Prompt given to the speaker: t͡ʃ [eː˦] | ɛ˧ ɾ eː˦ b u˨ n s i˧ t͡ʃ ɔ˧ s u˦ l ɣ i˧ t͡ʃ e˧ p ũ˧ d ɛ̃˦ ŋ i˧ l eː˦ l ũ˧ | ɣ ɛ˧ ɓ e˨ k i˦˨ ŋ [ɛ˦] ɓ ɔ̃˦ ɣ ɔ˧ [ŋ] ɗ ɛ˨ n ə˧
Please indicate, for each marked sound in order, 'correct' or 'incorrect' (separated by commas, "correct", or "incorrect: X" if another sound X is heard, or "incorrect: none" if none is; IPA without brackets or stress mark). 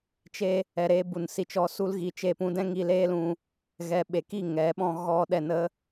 incorrect: e˦, incorrect: ɛ˨˦, incorrect: none